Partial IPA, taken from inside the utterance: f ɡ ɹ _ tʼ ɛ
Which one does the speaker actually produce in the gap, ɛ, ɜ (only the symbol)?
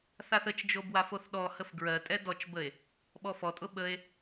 ɜ